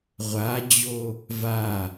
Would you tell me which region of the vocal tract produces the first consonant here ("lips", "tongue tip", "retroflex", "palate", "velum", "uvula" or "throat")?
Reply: uvula